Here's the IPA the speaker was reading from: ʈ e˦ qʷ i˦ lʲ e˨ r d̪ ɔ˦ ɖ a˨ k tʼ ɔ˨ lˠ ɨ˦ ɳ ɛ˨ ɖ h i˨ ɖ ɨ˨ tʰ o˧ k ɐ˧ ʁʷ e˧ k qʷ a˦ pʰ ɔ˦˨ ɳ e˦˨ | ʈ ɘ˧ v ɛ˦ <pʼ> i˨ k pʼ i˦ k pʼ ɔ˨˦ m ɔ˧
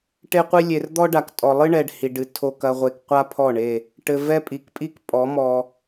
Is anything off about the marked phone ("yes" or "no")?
no